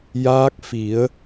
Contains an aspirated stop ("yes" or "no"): no